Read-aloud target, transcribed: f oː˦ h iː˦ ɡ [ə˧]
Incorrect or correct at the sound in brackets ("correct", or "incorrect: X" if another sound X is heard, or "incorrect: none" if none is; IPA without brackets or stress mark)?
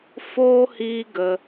correct